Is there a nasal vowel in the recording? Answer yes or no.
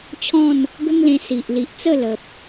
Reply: yes